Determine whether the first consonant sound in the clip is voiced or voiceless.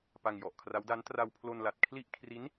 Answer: voiceless